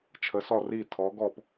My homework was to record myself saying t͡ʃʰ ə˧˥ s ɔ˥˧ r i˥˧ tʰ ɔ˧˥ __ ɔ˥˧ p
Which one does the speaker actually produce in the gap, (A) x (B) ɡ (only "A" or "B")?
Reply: B